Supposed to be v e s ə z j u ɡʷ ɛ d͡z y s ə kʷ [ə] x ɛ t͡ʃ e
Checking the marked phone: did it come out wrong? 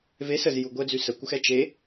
no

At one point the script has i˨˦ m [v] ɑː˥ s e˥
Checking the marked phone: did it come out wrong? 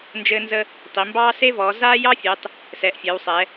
yes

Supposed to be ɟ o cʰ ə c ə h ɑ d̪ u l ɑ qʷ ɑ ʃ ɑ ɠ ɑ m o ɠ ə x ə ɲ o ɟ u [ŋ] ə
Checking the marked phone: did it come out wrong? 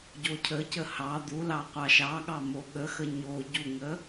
no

